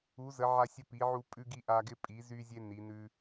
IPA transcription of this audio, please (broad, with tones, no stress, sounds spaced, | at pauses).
u˩˧ z ə˩˧ ʕ a˧ sʲ ə˧ p i˩˧ ʕ u˧ pʼ ʉ˧ ɡ i˧ ʔ a˧ ɡ ɪ˧ pʼ i˩˧ z y˧ zʲ e˧ n i˩˧ n ʉ˧